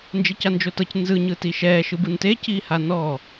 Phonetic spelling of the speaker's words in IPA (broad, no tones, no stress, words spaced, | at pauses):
nd͡ʒecand͡ʒotɤc nzɯ ɲɯtiʃɛː ʃɯbɯnte ciːhanɔː